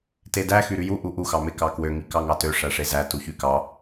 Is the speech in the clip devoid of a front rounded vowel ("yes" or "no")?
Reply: no